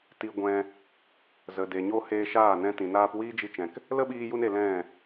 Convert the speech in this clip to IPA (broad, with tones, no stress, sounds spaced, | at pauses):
t i˧ ɡʷ ɛ̃˧ | z ə˨ d e˨ ɲ o˦ h eː˧ ʃ aː˦˨ n ɛ̃˧ t ĩ˨ n aː˦ p w iː˦ d͡ʒ i˧ t͡ʃ ɛ̃˨ k | l ə˦ ɓ iː˧ j u˧ n e˨ l ɛ̃˦˨